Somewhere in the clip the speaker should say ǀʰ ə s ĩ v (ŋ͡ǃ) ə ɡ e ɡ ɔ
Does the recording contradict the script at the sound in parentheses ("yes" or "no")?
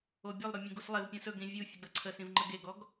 no